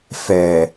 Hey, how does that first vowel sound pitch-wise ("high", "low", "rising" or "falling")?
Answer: low